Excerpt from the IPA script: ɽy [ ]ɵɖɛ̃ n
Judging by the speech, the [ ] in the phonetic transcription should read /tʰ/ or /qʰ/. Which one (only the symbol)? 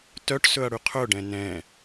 qʰ